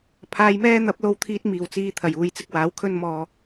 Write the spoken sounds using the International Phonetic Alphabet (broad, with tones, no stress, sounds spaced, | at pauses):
pʰ aː˧ j m ɛː˥ n̪ ɐ˨˥ p̚ l o˧ w t̪ʰ iː˧ t̚ m iː˨˩ w t͡s iː˨ t̪ʰ ɐ˨˩ j uː˨ j t͡s ɪ˧ k̚ w aː˨˥ w kʰ ɵ˧ n m ɔː˨